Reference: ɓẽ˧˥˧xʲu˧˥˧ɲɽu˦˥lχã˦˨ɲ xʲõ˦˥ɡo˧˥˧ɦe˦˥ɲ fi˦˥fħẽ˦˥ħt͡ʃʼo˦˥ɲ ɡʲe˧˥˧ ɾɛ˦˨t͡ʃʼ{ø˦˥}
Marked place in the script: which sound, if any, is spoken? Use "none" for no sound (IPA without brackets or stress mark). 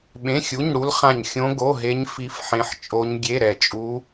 u˦˥